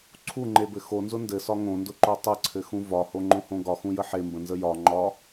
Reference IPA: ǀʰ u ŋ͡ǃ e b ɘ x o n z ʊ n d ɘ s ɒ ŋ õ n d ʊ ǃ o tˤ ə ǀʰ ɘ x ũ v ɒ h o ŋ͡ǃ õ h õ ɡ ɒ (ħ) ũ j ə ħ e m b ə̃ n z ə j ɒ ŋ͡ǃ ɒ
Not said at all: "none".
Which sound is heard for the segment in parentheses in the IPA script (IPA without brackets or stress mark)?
x